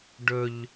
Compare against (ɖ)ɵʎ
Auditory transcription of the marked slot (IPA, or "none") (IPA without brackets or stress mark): ɖ